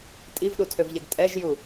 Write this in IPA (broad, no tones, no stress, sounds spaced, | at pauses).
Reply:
tʼ i v ɗ u tʰ ø v ʎ ɛ ɡ tʼ ɛ ʒ j u